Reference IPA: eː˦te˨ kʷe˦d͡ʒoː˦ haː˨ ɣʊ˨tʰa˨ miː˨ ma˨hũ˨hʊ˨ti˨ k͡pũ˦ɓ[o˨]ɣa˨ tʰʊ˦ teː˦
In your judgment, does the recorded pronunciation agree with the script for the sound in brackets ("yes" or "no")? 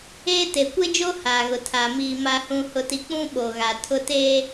yes